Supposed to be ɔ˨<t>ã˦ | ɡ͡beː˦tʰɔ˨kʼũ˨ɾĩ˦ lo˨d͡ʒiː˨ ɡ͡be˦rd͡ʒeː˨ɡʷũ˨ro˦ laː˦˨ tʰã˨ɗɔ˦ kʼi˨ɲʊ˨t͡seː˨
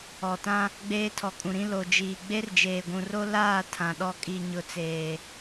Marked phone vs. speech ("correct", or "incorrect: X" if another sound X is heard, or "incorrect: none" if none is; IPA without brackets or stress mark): correct